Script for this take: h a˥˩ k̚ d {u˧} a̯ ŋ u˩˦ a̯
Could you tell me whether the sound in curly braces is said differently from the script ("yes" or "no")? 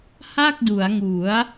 yes